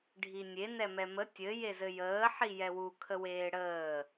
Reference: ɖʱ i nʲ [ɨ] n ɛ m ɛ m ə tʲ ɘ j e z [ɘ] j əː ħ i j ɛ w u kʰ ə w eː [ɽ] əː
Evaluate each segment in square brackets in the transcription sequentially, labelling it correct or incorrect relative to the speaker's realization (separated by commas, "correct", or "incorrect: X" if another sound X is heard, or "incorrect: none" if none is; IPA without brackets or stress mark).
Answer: incorrect: e, correct, correct